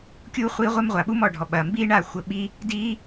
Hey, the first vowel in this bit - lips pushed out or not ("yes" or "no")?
yes